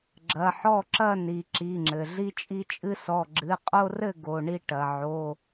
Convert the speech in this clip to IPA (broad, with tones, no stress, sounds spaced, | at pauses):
ɡ͡ǁ ɐ˩˧˩ ħ ɔ˥˨ ǁ ɐ˥˨ n i˩ ǁ i˩˧˩ ŋ͡ǁ ɘ˩ ɮ i˦ t͡ʃʼ i˦ t͡ʃʼ ɨ˦ s ɔ˩˧˩ ɡ͡ǁ ɨ˩˧˩ qʼ o˦ r ɘ˥˨ ɡ o˩˧˩ ɳ i˥˨ ʈ ɐ˩ ʕ o˩˧˩